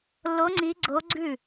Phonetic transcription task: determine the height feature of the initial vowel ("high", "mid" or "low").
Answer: mid